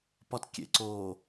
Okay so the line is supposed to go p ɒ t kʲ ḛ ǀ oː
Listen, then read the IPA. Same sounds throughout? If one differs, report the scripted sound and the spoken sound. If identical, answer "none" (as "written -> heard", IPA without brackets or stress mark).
none